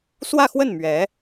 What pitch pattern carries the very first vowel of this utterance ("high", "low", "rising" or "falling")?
falling